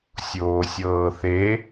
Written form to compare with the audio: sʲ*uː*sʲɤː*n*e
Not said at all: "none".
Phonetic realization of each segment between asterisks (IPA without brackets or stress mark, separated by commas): oː, θ